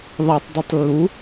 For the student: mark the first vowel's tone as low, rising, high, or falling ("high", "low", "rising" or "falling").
low